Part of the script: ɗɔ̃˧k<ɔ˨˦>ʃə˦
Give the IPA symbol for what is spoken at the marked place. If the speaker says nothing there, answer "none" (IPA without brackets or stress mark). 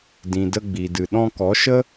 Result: ɔ˨˦